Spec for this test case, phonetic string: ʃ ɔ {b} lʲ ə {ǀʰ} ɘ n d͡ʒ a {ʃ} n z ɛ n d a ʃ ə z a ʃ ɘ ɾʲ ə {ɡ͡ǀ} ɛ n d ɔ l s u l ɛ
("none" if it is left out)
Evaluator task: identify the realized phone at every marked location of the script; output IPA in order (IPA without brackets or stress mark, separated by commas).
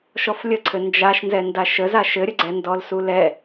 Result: f, ǀʰ, ʃ, ɡ͡ǀ